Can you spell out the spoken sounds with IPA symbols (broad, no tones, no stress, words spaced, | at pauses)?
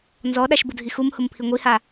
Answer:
nzɔɗaʃbudʱi xumhʊmpʰi ŋʷiha